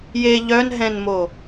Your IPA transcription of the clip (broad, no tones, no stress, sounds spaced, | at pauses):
j e ʎ œ n ɦ ɛ̃ n m o